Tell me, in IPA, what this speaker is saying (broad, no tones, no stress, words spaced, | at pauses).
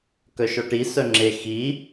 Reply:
kœʃɔʈi sœŋ͡ǁe xi